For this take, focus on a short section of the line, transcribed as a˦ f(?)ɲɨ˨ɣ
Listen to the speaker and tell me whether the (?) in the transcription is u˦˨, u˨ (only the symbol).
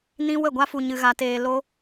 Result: u˨